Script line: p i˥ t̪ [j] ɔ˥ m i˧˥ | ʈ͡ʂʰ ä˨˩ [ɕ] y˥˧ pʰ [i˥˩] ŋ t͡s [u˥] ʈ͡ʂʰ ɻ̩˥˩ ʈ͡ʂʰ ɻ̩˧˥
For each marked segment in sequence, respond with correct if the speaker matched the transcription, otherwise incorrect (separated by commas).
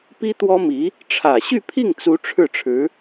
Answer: incorrect, correct, correct, incorrect